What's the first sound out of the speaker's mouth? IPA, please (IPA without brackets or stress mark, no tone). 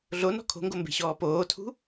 ɮ